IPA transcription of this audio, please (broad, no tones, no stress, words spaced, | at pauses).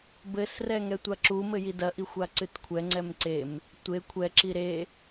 bɘsrɛ ŋɛtʷaǁu mɘjidɐʔi xʷaǀɨtkʷʰɛ ŋ͡ǀɛmǀem | tʷe kʷʰɛǁi ɾe